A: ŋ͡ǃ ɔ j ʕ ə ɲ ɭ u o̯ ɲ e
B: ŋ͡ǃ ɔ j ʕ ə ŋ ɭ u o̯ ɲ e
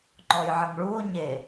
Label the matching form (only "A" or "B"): B